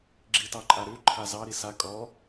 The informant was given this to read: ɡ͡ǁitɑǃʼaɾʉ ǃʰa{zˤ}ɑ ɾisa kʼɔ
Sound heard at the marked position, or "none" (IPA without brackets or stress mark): z